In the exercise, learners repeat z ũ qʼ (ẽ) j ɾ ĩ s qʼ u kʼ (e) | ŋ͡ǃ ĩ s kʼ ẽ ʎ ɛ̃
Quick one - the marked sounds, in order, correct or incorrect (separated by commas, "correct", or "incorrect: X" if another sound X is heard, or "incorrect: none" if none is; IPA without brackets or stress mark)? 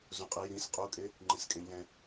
incorrect: e, correct